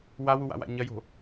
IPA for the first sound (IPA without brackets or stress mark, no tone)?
w